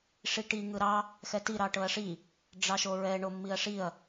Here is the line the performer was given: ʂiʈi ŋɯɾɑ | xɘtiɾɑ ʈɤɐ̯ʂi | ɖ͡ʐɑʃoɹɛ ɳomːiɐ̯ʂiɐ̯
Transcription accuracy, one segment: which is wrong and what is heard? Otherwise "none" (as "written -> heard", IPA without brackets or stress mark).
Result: ɘ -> ɛ